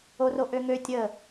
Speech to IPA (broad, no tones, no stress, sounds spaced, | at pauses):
o r o ʔ ø ŋ ø tʲ ə